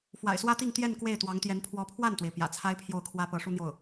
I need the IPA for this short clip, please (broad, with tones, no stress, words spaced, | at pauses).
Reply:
fwa̰˨˩ɪ̯swä˥t̪i˥˧ŋ t̪jɛ˥˧n kwe˥˩ɪ̯t̪wɑ˧˥ŋt̪jɛ˧˥n pʰwɔ˧˥pʰwa˥˩nt̪we˩ɪ̯ pjä̰˨˩t͡sʰa˥ɪ̯pʰjo˥˩ʊ̯kʰwä˥ pɤ˧˥ʂu˥n̪jo˥˩ʊ̯